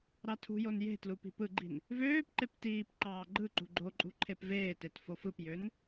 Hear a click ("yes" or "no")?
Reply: yes